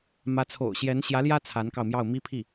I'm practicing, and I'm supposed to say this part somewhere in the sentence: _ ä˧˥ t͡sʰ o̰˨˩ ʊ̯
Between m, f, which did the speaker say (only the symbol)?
m